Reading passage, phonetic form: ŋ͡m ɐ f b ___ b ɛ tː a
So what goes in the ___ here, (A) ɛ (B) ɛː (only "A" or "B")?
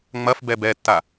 A